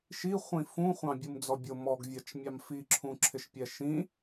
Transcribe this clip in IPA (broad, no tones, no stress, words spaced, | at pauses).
ʃi χʷĩfũ χʷɑ̃bʲumd͡zɔbʲʊ mɔɡvʲɜt͡ʃmʲɑm fiǁʰũǁʰɪʃpʲɛ ʃĩ